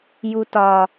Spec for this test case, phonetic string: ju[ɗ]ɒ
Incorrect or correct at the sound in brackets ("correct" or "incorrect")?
incorrect